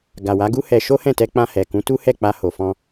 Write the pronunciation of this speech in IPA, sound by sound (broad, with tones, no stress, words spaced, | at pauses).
ɡa˨wa˨˦ɡu˦ hɛ˧ ʃo˦hɛ̃˦˨tɛ˧ k͡pã˧hɛ˨ kũ˨˦tu˦hɛ˦˨ k͡pa˧ho˨fɔ̃˧